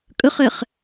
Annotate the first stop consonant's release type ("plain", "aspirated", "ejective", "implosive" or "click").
ejective